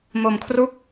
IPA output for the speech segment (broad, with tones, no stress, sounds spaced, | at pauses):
m o˧ m kʰ r u˦˥ k̚